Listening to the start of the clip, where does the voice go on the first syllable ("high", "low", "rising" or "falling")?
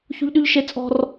high